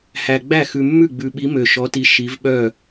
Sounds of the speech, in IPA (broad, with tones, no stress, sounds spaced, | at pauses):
h æ˨ ɡ͡b æ˥˩ x ʉ˨ mː ʉ˥˩ ɡ͡b ʉ˨ ɓ i˨˦ m ø˨ ʃ ɔ˨˦ t i˨˦ ʃ i˨˦ v ɓ œ˥˩